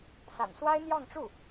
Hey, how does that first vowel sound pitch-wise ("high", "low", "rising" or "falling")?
low